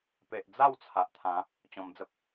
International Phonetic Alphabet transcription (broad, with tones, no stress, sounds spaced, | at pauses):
p e˨ ʔ d͡z a˥˧ w t͡sʰ a˨ ʔ t̪ʰ ã˨˦ | t͡ɕ ɔ̃˧ m d͡z ə˦ p̚